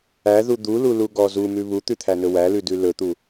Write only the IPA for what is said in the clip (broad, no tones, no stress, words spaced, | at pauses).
æðu d̪ululuɡɔ zumʉ βut̪ʉt̪ʰænɵ wælʉdʉ lɵt̪u